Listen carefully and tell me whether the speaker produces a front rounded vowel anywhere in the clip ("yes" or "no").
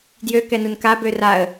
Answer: yes